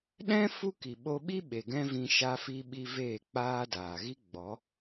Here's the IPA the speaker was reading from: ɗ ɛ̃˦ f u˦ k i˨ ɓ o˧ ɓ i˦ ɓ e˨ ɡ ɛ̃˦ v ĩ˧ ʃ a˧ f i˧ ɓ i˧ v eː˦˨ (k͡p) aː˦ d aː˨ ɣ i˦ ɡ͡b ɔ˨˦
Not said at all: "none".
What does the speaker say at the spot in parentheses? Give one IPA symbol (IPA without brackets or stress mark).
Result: k͡p